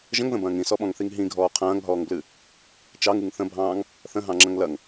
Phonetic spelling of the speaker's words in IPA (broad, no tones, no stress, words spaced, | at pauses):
ʒə̃ŋðə̃bɐ̃ːŋ ĩsɔɓɔ̃ŋθiŋ ɦĩɡʱɔː qʰɐ̃ːŋɦɔːŋblɨ | t͡ʃɑŋɨŋ θə̃bʱɑ̃ːŋ | θə̃ɦɑ̃ŋ͡ǁɐ̃ŋ lɐŋ